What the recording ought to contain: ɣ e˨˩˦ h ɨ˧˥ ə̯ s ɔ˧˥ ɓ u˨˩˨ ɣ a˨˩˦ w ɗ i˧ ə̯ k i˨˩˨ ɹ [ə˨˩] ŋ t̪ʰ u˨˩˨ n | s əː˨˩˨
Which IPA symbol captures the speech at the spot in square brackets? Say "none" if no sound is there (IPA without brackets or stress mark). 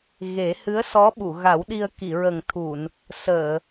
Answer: ə˨˩